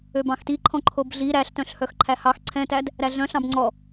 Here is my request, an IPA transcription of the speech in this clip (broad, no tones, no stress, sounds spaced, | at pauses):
ø b ɑ̃ x t i ǃʰ ɔ̃ ǃʰ o b ɮ i ɾ æ ɬ t œ̃ ɬ h œ x ǃʰ æ h ɑ x ǀʰ ɛ̃ t æ d | ɾ æ ɮ œ̃ ɬ ɑ̃ b ŋ͡ǀ ɔ